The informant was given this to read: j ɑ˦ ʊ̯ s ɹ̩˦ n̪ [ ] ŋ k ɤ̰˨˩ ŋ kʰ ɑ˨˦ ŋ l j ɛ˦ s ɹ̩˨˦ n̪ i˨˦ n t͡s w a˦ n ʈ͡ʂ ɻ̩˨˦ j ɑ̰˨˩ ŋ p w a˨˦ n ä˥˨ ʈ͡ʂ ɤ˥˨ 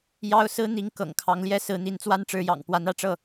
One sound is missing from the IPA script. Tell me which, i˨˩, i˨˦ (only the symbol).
i˨˦